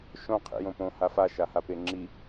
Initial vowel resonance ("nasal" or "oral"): nasal